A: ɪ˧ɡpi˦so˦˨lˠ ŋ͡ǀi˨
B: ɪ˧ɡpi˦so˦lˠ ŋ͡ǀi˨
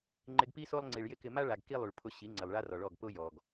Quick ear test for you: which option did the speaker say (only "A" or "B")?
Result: B